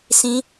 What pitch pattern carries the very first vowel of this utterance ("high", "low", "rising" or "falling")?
high